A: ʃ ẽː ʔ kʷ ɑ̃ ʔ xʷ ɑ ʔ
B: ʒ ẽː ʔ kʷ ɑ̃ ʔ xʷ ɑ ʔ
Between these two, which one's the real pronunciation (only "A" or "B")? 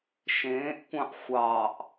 A